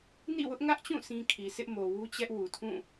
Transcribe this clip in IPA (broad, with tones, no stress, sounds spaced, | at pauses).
n ḭ˦˨ w ʊ˦ ʔ ŋ ä˦ ʔ t͡ɕ ũ˦˨ s ĩ˦ kʰ i˨ s ɪ˦ ʔ m o˨ w u˦ t͡ɕ ɛ˦ ʔ w u˨ tʰ ũ˦˨